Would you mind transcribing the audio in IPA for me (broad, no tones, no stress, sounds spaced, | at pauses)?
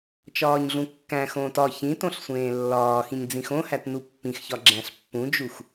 t͡ʃ ɒː ɲ ɮ ũ kː æ̃ x õː t ɒ ç ĩ t õ ɬ sʷ ẽː lː ɒː x ĩ ɲ d͡z ĩ x õ h æ t n u pː ĩ x ç ɒ ɡ͡ǁ æ̃ ɬ pː ũ d͡ʒ u x